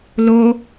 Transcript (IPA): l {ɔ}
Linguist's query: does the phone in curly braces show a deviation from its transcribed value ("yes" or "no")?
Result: yes